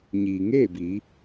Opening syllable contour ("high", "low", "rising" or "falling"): low